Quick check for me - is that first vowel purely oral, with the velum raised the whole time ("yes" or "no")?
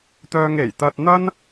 yes